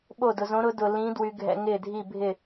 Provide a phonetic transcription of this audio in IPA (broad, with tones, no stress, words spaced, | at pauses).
ɓo˥˨dʊ˧ zõ˧˥ɾʊ˧˥ dʊ˧ lĩ˧˥ dwy˧ɡʱɛ̰˧ ŋɪː˥˨dʱi˥˨ bʱɪ˥˨